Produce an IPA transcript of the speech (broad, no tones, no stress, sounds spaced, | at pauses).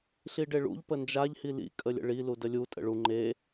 ɬ i ɖ e ɭ ṵ ʎ p ə n d͡ʒ a ʎ h i l ḭ kʼ ə lʲ ə̰ ɭ i l u d ə lʲ u tʼ ə̰ ɭ u ŋ͡ǃ e